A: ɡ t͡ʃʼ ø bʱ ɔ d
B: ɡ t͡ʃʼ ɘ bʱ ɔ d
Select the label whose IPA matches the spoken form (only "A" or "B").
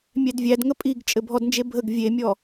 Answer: B